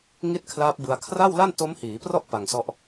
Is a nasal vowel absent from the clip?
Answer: yes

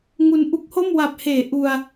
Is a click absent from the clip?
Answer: yes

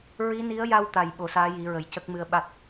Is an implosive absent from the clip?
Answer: no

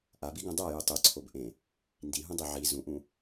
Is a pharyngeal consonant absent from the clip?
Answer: no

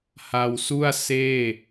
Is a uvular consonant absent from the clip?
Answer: yes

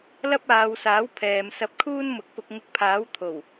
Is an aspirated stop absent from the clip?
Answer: no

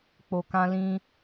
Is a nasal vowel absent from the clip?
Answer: no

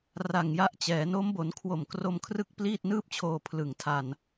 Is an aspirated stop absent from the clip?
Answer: no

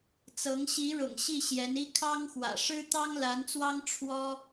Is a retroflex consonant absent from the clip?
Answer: no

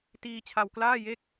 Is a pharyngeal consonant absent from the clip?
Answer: yes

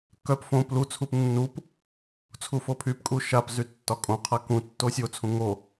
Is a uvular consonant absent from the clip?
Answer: no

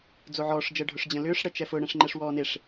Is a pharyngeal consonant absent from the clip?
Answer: no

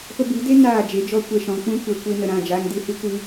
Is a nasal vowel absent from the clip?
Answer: no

